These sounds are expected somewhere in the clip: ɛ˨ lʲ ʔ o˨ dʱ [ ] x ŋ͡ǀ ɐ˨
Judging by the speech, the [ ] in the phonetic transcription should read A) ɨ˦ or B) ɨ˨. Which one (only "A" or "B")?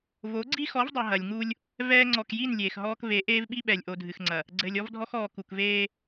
B